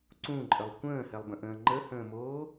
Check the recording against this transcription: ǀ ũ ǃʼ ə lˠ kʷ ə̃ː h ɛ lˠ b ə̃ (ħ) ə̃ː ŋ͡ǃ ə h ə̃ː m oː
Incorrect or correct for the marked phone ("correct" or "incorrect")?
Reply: incorrect